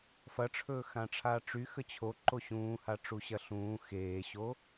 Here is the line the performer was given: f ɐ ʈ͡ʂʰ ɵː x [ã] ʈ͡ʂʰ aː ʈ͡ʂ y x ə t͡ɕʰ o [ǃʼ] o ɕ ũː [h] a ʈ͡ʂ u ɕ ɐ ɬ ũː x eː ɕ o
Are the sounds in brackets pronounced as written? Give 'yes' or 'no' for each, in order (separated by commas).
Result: yes, no, yes